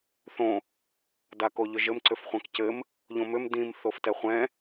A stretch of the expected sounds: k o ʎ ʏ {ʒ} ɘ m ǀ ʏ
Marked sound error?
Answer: no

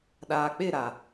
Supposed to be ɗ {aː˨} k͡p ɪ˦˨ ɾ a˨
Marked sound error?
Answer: no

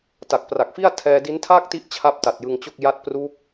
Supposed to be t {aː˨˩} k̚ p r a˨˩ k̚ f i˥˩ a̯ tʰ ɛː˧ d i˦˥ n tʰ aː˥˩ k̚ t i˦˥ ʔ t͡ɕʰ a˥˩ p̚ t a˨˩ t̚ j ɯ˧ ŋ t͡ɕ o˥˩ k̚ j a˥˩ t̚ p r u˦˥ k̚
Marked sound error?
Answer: yes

